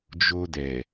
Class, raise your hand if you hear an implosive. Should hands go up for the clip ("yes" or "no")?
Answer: no